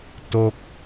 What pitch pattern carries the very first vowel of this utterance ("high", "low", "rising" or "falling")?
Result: falling